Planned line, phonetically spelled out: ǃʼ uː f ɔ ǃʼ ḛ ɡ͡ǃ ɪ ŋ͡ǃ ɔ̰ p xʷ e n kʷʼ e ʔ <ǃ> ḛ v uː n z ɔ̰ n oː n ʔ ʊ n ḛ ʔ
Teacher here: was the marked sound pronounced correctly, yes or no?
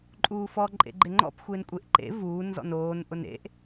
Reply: yes